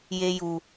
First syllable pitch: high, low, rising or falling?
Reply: high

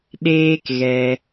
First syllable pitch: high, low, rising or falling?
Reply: high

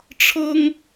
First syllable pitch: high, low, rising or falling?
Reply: high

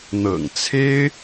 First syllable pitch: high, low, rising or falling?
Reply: low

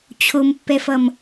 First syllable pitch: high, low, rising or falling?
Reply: low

